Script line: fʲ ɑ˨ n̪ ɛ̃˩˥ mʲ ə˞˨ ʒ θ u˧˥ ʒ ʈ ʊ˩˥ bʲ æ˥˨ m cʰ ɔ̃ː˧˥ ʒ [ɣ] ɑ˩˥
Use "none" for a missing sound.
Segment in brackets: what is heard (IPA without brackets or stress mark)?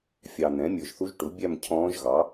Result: ɣ